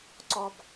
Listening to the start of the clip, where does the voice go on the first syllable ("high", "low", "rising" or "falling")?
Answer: high